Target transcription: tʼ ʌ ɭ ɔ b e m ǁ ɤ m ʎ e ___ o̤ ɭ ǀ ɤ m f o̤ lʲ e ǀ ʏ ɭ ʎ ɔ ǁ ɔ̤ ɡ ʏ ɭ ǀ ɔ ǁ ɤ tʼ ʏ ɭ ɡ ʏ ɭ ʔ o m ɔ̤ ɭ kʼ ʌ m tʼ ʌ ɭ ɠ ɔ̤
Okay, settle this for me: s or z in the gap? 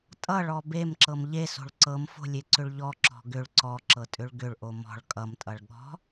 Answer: s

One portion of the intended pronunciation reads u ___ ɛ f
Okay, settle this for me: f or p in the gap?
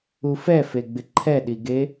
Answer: f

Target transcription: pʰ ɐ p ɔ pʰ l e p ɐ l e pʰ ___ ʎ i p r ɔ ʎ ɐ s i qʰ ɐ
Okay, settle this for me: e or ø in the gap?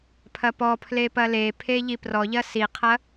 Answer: e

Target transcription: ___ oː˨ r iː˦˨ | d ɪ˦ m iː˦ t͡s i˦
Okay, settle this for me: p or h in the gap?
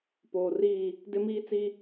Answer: p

